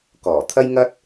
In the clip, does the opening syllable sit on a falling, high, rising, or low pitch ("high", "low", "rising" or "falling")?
low